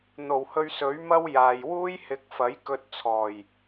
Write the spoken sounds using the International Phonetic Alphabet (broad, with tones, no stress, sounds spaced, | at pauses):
n̪ o˨˩ w h ɵ˧ ɥ s ɵ˨˥ ɥ m ɐ˥ w j aː˨ j w uː˥ j h ɪ˨˥ k̚ f ɐ˨˥ j k ɵ˧ t̚ t͡sʰ ɔː˨˩ j